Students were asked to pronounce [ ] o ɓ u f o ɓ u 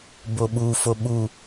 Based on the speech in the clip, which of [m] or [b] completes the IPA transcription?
b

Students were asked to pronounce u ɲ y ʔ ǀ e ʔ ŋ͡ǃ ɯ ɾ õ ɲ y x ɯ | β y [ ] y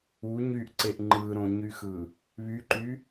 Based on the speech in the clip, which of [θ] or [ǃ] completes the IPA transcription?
ǃ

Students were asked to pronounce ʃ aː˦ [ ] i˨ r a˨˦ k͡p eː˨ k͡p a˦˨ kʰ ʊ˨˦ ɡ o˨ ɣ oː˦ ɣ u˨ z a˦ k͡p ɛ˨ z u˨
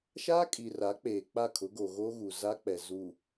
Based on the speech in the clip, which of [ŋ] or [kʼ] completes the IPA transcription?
kʼ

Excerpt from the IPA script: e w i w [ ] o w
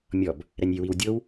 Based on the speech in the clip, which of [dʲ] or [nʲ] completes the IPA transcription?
dʲ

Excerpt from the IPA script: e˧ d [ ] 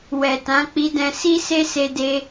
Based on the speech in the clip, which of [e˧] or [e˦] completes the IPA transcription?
e˧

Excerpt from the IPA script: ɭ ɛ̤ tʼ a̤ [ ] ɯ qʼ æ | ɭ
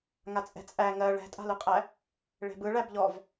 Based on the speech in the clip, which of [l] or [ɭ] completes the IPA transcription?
l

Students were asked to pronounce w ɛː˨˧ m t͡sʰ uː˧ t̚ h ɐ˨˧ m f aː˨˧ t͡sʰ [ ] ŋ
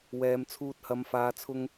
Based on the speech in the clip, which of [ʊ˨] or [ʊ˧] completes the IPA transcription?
ʊ˧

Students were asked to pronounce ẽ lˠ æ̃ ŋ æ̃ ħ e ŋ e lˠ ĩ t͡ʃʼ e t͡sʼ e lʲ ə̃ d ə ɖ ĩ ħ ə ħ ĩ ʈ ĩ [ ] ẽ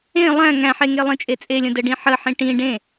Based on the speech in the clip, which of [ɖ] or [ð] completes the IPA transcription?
ɖ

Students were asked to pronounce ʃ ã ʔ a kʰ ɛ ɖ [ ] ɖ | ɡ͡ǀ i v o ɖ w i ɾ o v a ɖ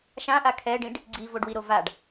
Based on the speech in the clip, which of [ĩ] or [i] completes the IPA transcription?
ĩ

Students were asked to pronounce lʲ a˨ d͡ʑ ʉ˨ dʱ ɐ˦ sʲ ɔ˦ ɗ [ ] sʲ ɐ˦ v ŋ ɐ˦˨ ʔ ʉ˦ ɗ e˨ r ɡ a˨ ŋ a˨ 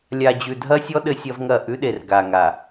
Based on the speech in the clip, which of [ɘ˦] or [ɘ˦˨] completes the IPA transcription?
ɘ˦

